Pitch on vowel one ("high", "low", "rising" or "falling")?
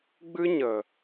high